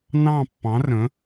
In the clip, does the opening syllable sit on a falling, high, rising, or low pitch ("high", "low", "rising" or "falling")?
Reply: falling